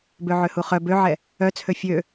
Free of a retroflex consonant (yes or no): yes